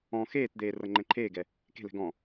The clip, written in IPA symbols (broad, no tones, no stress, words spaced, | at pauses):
ɔ̃ xeːtd̪eː rɤŋ͡ǃɛ̃ǃʰeːɡɛ | ke̤lɛ̤ ɡɔ̃